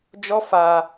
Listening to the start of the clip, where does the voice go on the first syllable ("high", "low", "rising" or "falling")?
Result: high